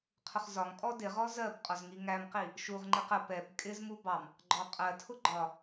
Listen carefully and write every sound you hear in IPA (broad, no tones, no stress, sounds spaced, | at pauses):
qʰ ʊ χ z ɒ ŋ kʼ ɔ d ɪ ʁ ɔ z ɜ b qʼ ɔ z ŋ i ŋ æ m q i | ʃ u ʁ ŋ͡ǃ i q ə p ɛ b kʼ ɪ z m u b ɑ m | ɡ͡ǃ ɔ qʼ ɜ tʰ ʊ ɡ͡ǃ ɒ